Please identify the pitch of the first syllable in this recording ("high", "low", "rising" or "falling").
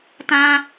high